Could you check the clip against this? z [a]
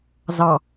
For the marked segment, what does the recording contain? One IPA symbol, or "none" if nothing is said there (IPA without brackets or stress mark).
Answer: ɑ